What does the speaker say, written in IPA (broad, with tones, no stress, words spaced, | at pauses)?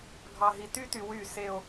ɡʱɑ˨ɦi˨ty˦ty˨ wy˦˨se˦o̯